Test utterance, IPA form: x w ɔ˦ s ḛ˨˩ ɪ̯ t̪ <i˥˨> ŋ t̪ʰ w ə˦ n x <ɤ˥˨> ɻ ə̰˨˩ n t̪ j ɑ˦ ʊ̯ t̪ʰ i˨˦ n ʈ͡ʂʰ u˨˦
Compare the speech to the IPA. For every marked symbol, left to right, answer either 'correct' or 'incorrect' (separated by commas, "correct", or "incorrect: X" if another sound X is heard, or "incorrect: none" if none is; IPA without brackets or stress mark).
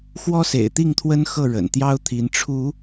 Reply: correct, correct